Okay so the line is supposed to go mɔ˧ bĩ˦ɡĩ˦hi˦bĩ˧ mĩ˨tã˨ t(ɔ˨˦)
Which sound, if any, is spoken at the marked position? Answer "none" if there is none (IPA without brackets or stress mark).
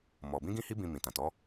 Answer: ɔ˨˦